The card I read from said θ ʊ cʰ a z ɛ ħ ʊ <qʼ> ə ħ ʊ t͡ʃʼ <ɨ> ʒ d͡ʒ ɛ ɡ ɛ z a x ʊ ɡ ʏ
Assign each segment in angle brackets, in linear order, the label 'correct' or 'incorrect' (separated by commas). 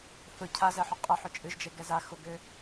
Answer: correct, correct